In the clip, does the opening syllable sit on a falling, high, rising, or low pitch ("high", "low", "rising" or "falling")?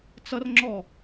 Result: high